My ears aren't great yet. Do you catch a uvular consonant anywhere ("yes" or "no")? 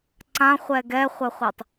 yes